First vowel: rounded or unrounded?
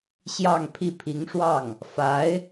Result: unrounded